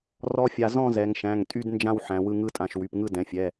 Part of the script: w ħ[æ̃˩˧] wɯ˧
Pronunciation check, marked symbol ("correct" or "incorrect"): correct